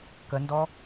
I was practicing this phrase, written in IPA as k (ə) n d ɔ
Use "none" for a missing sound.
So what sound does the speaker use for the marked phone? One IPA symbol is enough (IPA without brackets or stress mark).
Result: ə